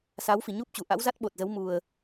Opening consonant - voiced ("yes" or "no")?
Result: no